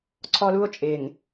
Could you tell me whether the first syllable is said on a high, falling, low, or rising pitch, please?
high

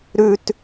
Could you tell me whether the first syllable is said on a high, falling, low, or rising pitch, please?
high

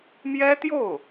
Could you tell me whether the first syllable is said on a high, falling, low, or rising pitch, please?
high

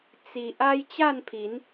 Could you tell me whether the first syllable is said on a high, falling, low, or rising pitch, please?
low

